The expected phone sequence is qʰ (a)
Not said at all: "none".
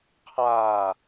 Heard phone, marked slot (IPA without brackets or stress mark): a